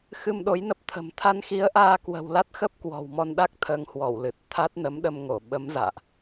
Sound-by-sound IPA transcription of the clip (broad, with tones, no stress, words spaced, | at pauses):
xɨ˧mɗo˨˦jnə˦˥p̚t̪ʰə̤˨˩m t̪ʰa˧nxi˨˦ə̯ʔaː˧ kwə̤˨˩wla˦˥t̚xə˦˥p̚ kwɔ̤˨˩wmɔ˧nɗa˦˥k̚ t̪ʰəː˧ŋhwɔ˧˩wlɨ˨˩t̚ t̪ʰa˦˥t̚nə˨˦mɗə˧m ŋo˧˩ɓə˨˦mza̰ː˧˨ʔ